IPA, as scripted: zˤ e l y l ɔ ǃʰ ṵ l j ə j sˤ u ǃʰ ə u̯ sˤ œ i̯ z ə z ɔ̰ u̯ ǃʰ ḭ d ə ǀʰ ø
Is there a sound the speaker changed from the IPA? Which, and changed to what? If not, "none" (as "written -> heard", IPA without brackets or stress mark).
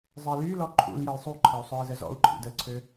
none